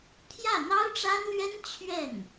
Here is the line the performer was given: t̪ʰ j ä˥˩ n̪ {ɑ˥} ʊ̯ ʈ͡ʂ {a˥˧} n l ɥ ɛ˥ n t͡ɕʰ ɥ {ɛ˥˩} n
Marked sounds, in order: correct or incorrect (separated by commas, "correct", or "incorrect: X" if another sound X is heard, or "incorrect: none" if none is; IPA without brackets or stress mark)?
correct, incorrect: a˥, correct